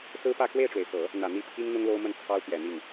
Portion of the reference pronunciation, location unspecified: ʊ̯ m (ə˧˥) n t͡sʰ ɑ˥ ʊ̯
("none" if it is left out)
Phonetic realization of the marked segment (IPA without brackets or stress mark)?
ə˥˩